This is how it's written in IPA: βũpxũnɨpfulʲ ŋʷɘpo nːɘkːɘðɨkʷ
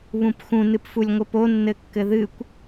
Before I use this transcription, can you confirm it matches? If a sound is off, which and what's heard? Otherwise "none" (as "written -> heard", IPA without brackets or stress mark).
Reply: none